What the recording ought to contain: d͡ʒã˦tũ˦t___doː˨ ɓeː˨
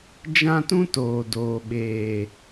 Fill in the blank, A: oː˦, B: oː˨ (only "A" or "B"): B